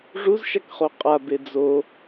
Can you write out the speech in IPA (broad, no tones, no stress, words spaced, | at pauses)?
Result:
ʐuzʃak χoqʼabe d͡zo